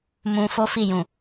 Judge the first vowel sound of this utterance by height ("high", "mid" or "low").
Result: high